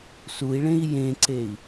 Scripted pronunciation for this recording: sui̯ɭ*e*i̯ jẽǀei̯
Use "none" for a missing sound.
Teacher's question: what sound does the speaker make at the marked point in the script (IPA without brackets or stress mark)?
ẽ